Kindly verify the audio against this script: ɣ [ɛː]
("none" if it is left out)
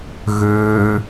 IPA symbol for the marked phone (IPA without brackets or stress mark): øː